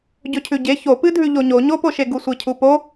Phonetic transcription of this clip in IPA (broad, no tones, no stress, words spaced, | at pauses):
ɟɵcʰʉɟe çopɨdʱʉ ʎoɲo ɲopoʃe ɡusʷecʰupo